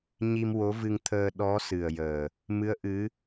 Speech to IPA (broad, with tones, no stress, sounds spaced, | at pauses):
ɲ i˧ m w o˧˥ v ɨ˧ ŋ t̪ʰ əː˧ ɗ ɔ˧˥ s ɨ˨˩ ə̯ j əː˨˩ | m ɨ˧˥ ə̯ ʔ ɨ˧˥